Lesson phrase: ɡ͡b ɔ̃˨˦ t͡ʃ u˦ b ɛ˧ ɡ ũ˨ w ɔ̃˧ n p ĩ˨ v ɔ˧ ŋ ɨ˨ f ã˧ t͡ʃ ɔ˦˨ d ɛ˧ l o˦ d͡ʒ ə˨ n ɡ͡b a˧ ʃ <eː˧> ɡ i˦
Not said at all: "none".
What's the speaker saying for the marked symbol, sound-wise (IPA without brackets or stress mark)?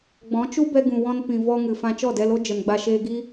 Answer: eː˧